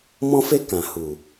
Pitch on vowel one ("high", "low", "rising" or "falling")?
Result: high